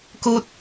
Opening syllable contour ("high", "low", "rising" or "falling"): high